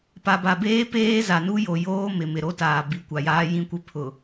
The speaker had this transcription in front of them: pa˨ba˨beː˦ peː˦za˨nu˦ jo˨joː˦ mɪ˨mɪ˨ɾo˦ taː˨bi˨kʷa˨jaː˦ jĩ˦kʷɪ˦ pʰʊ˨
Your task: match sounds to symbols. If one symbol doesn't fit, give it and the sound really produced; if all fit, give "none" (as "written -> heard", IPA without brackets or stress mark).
none